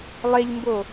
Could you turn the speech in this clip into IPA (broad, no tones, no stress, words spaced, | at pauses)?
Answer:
lˠeʎmbo